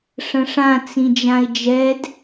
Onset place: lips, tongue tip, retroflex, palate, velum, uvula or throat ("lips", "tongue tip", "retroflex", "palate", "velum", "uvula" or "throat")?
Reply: retroflex